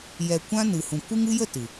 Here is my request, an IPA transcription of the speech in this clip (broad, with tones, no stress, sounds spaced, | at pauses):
j ɛ˨ kʷ ã˧ n ɨ˨ h ũ˨ kʷ ɨ˧ ŋ ɨ˧ j ə˦˨ t ɨ˨